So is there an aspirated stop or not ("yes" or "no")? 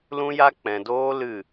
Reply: no